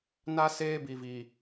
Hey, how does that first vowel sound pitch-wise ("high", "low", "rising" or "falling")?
high